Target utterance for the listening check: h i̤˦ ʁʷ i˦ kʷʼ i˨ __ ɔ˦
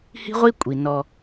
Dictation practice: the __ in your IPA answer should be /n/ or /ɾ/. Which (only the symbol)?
n